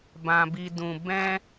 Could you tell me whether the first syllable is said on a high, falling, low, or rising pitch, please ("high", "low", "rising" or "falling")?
high